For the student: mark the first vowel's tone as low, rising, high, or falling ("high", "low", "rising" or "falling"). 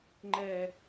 low